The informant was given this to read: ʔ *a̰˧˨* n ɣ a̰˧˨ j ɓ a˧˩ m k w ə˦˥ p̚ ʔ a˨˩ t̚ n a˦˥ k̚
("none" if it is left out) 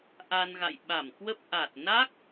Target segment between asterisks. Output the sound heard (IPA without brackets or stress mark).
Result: a˧